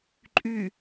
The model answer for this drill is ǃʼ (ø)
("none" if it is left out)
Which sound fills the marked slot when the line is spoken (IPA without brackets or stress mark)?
y